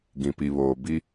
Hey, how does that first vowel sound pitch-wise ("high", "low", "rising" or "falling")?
low